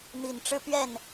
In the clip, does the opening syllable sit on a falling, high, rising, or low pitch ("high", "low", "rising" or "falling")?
low